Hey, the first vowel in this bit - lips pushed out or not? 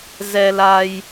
no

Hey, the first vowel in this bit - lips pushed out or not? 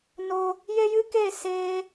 yes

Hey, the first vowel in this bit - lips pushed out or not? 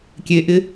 no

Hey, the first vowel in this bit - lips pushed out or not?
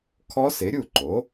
yes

